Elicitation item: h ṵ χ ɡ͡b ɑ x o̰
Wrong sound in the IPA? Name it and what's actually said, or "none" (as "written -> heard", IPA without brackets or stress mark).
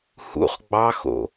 none